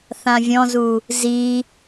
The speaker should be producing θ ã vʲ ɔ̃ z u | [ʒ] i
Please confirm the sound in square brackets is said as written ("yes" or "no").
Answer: no